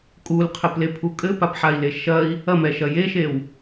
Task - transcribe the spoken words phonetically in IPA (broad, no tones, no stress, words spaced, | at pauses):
kʼulqʰɘplepʰu kʼɘpapħai̯le ʃɐi̯ | ɐmɛʃɐ jeʃew